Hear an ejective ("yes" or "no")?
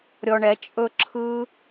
yes